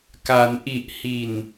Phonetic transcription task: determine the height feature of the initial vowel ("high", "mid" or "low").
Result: low